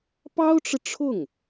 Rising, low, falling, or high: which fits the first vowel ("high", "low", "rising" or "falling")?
high